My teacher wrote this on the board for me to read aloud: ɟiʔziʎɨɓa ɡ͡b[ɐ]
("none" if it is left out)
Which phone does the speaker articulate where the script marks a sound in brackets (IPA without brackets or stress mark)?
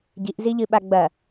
ɐ